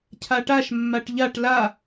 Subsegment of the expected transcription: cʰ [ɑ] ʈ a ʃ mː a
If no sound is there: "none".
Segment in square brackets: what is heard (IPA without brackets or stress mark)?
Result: a